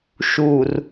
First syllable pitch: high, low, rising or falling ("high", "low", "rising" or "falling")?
low